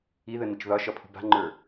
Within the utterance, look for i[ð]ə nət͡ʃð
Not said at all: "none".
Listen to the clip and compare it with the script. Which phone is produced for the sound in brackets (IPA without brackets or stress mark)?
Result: ð